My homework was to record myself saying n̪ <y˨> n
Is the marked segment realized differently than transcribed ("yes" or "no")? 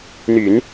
yes